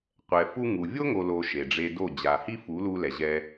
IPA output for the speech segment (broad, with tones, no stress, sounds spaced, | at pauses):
qʷ ɛ˨ f u˧ ŋ u˨ vʲ o˦ ŋ o˨ l o˨ ʃ e˨ ɖ͡ʐ e˧ d o˦˨ d͡ʑ a˨ h i˦ f u˨˦ l u˧ l ɛ˨ ʑ ɛ˧